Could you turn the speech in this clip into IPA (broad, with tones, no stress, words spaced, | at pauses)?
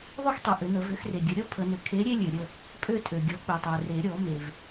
ðˤø˥xtˤø˨ʔʏ˨˩˦nə˨˩˦ vʏ˨˥xre˨ɡʲə˨˥ɾʲɔ˥ pʰə˨˩˦nʏ˨ kʰe˨˥ ɾʲe˥lʲø˨ ɾʲə˥˨ | pʼø˥˨tʼø˨ɡʲɔ˨˥ k͡pø˨tˤø˨ re˨˩˦ɾʲɔ˨˩˦ me˨v